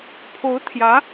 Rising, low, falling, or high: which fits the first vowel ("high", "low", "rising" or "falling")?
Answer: rising